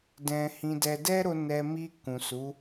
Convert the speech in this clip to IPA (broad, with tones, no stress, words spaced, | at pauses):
dɛ̃˧hĩ˧dɛ˧ dɛ˦ɾo˧ nɛ˧ mi˧ kũ˨su˨˦